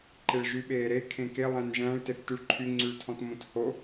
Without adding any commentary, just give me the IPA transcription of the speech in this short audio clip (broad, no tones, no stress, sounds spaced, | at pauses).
ǃ e ɭ ʒ y ɓ eː ɾ e kʰ ẽ k e lˠ æ̃ n ʒ æ̃ ɭ t e θ t ʉ ɭ ǃʰ y ŋ͡ǀ y ɭ tʰ ɔ̃ t m õ t h o